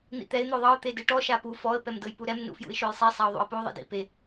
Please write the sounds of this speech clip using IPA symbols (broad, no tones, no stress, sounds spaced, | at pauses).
n̪ ḭ t̪ ɛ ɪ̯ n̪ o ðˤ ɤ ʊ̯ t̪ e d ɯ ʈ ɔ ʃ a p u f ɔ ə̯ p ɛ m d ɤ j p u ɾ ɛ m n ṵ f j ṵ ɪ̯ ʃ o j sˤ i sˤ a ʊ̯ ðˤ ṵ ə̯ p u ðˤ ḭ d ḭ p e